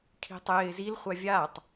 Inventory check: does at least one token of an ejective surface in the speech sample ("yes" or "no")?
no